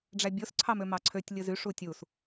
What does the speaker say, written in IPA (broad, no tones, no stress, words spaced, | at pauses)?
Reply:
ɖ͡ʐæbʲos ǀʰɑmømɑǀʰøtʲ lʲɯzyʂ utʲus